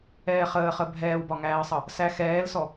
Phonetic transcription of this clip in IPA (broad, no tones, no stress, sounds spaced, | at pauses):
ɛː χ əː χ ə bʱ ɛː w b ɒ ŋ æː ə̯ sˤ ʌ | s æ x ɛː l s ɔ